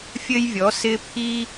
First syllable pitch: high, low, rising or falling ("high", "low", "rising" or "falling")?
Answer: high